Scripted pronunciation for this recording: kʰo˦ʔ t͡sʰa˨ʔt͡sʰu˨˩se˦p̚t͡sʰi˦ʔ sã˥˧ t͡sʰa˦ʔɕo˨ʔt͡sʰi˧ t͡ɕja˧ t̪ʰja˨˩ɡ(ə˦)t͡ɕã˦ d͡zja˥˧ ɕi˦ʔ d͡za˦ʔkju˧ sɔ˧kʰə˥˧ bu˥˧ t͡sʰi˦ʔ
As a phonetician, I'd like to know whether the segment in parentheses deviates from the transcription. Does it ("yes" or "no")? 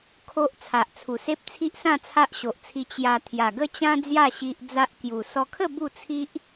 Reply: no